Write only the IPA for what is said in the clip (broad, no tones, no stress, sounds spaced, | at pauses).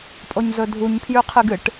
pʼ o ɲ z ɵ dʱ u ɲ pʰ j ʉ qʰ ɨ ɡ ɨ ʈ